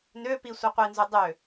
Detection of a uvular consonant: present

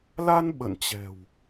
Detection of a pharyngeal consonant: absent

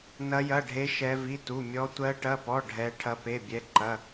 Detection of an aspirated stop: present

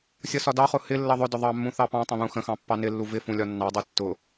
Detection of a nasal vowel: present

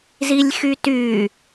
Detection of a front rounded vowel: present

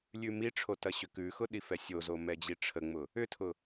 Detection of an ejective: absent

